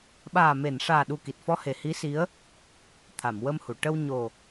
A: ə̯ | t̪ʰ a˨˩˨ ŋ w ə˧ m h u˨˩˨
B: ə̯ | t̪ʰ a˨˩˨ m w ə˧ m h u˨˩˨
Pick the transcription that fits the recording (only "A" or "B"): B